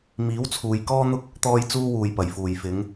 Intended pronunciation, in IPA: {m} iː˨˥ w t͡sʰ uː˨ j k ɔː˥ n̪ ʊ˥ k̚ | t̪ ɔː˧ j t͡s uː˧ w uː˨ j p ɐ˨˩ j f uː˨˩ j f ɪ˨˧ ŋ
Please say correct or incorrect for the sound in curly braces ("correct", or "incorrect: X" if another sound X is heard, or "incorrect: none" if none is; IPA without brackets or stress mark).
correct